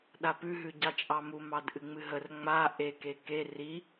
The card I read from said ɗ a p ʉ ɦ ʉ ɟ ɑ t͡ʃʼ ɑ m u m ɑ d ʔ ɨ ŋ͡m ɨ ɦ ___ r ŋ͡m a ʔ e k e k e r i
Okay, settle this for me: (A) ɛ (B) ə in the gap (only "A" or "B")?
B